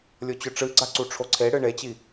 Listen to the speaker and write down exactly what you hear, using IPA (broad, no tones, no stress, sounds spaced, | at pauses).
lʲ o t͡ɕ ɵ ʈ͡ʂ ɨ ɡ͡ǀ a ǀ u ʈ͡ʂʰ o ǀʰ e ɽ ɨ ɳ e t͡ɕ i